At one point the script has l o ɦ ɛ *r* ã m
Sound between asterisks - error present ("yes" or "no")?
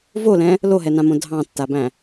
yes